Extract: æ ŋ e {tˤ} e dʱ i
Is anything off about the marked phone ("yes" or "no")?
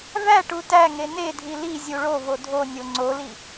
yes